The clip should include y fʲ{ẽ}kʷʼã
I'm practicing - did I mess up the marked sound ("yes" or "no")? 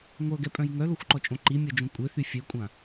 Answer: yes